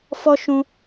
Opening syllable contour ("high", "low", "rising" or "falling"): high